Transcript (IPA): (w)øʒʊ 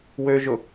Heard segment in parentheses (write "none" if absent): w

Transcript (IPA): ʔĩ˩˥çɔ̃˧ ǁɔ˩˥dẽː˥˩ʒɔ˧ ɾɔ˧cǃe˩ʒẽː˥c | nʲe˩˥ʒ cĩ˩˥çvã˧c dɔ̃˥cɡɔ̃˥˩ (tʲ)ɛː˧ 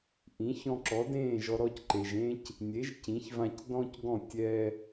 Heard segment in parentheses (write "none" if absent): tʲ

